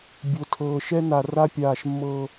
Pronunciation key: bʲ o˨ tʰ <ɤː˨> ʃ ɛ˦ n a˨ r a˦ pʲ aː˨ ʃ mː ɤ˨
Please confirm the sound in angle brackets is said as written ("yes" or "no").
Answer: yes